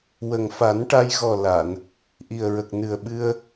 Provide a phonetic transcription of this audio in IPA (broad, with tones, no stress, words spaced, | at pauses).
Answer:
wə˨˩ŋfa˨˩˦nʈa˧j ɣɔ˨˩ la˨˩˨n | ʔi˨˩ə̯ɹə˨˩k̚nɨ˨˩ə̯ ɓɨ˧ə̯